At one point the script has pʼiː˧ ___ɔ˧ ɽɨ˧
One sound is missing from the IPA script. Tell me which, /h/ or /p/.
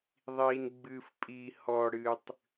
h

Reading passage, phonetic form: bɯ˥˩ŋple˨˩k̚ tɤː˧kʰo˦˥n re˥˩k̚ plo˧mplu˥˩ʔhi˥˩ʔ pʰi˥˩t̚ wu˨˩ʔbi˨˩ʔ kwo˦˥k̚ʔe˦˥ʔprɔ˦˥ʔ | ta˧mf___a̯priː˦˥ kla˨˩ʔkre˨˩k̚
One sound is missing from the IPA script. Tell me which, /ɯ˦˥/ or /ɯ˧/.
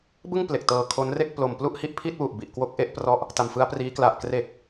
ɯ˦˥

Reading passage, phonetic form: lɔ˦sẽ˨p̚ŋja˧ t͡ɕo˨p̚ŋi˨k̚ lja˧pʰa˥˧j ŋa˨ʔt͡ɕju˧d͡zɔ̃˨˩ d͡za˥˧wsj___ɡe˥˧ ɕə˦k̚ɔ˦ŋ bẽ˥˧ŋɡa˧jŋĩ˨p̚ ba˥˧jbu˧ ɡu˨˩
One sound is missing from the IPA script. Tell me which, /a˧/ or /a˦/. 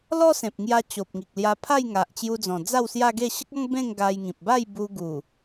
a˦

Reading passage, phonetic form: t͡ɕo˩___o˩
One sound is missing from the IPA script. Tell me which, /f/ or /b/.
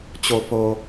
f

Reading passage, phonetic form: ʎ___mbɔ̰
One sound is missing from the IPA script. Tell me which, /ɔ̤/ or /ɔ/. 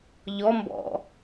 ɔ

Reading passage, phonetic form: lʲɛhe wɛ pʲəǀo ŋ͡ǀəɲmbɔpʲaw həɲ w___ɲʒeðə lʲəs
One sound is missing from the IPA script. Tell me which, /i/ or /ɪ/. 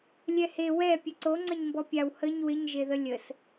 ɪ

